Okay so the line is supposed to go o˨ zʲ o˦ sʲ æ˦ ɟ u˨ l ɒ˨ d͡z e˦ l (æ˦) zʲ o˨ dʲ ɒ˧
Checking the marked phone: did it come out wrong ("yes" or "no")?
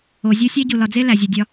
yes